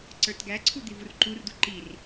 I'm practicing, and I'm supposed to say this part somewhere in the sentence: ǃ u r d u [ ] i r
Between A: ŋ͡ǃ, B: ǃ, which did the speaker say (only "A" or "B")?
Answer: B